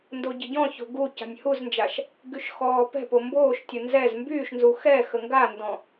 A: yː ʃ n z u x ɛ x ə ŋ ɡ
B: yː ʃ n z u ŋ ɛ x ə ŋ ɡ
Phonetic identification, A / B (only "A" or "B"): A